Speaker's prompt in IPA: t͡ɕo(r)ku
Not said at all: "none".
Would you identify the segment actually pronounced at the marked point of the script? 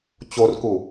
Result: r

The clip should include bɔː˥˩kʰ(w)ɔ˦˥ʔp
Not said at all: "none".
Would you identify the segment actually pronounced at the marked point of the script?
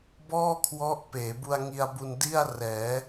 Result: w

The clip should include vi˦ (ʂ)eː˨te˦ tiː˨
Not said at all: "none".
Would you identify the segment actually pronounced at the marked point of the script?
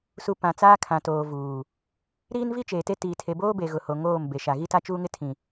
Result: t͡ʃ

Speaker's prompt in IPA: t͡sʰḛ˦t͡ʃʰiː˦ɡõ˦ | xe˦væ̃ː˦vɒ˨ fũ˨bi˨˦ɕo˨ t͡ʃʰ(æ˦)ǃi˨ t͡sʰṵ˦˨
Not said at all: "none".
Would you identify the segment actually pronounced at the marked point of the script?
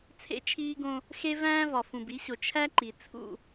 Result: æ˦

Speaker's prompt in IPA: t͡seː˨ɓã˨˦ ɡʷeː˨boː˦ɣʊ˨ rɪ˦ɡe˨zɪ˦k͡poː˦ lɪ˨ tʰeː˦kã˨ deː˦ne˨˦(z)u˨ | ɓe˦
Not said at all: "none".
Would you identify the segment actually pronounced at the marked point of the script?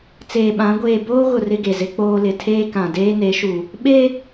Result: ʃ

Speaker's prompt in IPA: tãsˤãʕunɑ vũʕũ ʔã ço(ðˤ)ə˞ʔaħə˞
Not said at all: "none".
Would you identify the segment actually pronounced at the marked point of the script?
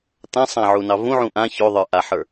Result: ðˤ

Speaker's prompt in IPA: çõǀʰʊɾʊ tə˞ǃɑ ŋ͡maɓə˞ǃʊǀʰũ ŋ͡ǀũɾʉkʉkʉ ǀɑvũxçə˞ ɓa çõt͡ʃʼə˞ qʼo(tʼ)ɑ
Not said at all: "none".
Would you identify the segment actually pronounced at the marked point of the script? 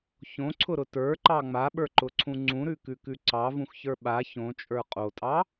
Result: tʼ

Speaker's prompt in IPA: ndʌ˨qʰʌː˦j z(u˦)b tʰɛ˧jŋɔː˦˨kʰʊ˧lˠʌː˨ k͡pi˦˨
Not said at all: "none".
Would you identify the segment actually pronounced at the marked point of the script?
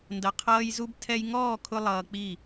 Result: u˦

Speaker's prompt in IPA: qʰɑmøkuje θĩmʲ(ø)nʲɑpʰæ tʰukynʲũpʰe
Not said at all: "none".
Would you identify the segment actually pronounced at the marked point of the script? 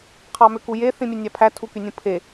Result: ø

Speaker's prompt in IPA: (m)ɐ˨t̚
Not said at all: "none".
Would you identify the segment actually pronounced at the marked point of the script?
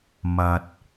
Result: m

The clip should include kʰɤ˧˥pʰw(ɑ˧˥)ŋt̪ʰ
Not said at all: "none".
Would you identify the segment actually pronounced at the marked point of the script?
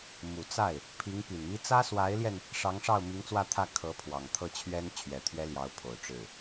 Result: ɑ˨˩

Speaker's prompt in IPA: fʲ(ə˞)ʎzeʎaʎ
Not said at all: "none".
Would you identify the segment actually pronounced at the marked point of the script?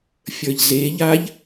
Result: ə˞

